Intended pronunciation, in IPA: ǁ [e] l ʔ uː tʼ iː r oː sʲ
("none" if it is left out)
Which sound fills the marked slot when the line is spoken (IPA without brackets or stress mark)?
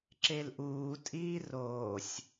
e